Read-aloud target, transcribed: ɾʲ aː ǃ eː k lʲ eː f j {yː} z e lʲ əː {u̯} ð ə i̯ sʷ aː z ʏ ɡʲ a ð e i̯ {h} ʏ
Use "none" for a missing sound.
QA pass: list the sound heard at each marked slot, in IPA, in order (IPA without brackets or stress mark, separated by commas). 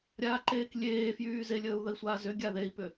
yː, u̯, p